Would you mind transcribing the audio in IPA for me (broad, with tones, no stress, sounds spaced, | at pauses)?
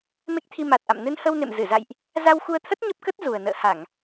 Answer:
m e˦˥ k̚ t̪ʰ i˧ m a˨˩ t̚ ʔ a̰˧˨ m n ɨ˧ n h ə˧ w n ḛ˧˨ m z ɨ˧˩ z a̰˧˨ j ʔ | z a˧ w x u˧ ə̯ t̪ʰ ə˦˥ t̚ ɲ ə˦˥ p̚ k ə˦˥ t̚ z u˨˩ ə̯ n ə̰ː˧˨ h a˧˩˨ ŋ